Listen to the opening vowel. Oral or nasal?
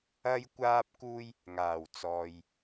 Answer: oral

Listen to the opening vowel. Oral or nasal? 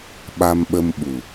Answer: oral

